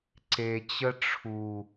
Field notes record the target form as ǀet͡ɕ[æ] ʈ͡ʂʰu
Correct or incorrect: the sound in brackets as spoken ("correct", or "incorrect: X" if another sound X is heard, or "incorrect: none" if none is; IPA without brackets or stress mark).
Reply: incorrect: ə